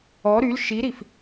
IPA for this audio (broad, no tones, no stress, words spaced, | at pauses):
ɔ ɾyl ʃiɾif